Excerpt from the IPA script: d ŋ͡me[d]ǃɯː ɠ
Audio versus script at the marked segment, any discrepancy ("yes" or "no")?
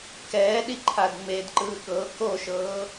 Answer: no